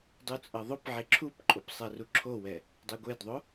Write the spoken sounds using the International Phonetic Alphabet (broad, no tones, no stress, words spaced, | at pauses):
dˤut͡sʼʌðˤopʕe ǁʰupǃʼop sˤɛruǁʰowɛ | dˤiɡʷedðˤo